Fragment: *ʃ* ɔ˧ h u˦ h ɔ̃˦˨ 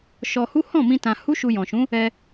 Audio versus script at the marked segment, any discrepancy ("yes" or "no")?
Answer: no